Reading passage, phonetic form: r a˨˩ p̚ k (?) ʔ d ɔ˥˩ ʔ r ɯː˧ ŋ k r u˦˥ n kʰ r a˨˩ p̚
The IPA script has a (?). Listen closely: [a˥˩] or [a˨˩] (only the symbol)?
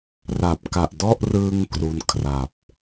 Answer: a˨˩